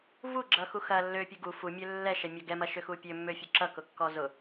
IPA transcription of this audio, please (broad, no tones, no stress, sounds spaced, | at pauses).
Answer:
v u ɡ͡ǁ ʌ x u x ɐ lː ø pʲ u ɡ u f u mʲ ø lː ɛ ʃ ɛ mʲ ɔ ɡ ɛ m ɐ ʃ ø x u pʲ ø mː ø fʲ ʊ ǁ ʌ k ʊ kː ɔ z ʊ